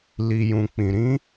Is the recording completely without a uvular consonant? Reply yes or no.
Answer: yes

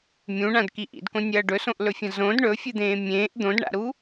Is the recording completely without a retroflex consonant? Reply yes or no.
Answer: no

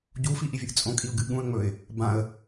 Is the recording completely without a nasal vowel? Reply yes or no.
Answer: no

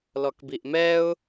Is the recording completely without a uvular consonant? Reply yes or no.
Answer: yes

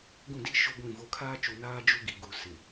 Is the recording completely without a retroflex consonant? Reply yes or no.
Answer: yes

